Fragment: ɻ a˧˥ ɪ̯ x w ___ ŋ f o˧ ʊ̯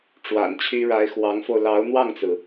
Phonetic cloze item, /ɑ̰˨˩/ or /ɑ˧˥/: ɑ˧˥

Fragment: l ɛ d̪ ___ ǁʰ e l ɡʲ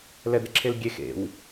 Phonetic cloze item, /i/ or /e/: e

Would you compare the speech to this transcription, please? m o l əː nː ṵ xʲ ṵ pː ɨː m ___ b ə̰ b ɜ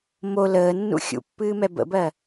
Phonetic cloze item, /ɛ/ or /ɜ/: ɛ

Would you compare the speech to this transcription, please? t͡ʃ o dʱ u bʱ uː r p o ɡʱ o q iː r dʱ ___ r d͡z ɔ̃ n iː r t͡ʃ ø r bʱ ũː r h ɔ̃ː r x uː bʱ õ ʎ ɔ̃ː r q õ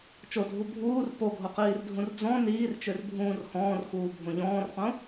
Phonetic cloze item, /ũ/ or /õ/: ũ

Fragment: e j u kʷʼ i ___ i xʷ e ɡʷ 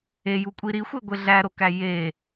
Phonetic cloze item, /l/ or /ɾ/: ɾ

